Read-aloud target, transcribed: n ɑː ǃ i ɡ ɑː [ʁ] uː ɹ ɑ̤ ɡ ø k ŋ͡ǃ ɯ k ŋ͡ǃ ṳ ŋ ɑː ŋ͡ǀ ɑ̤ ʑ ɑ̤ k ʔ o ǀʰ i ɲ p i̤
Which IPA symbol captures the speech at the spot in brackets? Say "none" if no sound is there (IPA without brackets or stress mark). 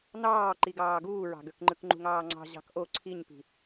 ɡ